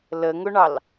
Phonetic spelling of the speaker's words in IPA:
l ə ŋ ʊ ɳ ɑ l

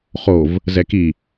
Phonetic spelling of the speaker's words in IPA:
χ o v | z ɛ k i

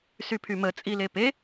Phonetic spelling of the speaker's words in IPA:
s y pʰ y m ə t͡sʼ i l e p e

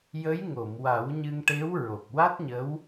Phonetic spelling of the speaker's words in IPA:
j ə˧˥ j ŋ o˨˩˨ m w a˨˩˦ w ɲ ɨ˧ ŋ ʈ e˧˥ w ɹ o˨˩ k̚ w a˦˥ t̚ ɲ ə˧˥ w

